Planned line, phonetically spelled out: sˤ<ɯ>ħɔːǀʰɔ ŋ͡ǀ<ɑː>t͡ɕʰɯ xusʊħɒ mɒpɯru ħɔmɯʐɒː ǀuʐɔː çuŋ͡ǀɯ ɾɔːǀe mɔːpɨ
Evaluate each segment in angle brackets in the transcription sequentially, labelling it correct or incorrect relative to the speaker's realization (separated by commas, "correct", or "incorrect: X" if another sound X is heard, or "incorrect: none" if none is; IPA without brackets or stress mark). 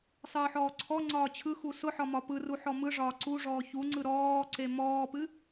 incorrect: ɯː, incorrect: ɒː